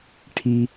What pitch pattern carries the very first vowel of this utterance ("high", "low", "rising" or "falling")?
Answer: low